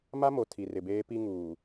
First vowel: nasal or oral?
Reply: oral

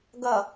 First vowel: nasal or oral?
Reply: oral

